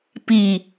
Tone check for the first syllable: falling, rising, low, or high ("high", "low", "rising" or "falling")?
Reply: low